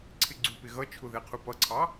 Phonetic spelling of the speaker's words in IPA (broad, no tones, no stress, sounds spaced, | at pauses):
ǀʰ ɪ ɡ͡ǀ u p ɪ ɣ ʌ t͡ʃʰ ʊ ð ɛ qʰ u p ʌ ǀʰ ɑ